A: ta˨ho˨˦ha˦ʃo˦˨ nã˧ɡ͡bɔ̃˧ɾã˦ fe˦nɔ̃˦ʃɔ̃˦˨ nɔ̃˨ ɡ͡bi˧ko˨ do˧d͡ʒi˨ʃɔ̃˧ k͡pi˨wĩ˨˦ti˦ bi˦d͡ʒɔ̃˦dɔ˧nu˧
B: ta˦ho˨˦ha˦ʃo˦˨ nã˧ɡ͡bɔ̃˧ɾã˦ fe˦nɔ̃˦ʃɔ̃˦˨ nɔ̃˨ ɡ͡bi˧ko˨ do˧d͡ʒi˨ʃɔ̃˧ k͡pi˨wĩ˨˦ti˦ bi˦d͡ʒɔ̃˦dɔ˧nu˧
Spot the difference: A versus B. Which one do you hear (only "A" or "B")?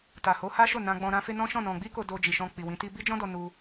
A